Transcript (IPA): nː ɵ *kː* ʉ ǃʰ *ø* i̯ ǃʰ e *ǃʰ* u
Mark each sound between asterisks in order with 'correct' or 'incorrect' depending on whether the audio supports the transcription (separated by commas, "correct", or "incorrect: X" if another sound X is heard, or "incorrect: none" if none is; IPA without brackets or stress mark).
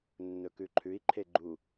incorrect: k, incorrect: ʉ, incorrect: ɡ͡ǃ